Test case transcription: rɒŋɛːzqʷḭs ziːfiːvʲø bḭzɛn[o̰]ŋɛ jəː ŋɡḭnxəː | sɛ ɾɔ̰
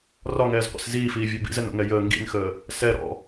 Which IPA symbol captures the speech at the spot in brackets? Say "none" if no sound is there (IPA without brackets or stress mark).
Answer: o̰